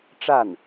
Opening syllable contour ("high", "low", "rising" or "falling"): falling